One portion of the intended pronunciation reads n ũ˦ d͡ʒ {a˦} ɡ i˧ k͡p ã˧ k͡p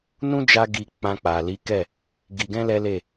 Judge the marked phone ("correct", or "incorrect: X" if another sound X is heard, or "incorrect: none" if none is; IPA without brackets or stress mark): incorrect: a˧